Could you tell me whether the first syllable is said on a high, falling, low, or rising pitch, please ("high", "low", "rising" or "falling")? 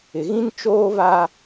low